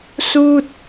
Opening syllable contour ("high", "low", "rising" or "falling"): falling